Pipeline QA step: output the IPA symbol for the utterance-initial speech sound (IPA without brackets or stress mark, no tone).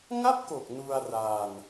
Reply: ŋ